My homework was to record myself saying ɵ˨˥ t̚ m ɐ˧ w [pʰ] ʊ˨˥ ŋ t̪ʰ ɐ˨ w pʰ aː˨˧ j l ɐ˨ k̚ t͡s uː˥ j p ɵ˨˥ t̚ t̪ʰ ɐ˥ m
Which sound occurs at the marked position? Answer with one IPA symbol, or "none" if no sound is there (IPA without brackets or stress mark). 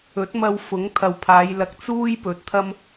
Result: f